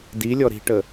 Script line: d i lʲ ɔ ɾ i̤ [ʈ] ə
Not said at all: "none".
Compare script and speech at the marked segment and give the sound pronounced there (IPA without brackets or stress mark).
ʈ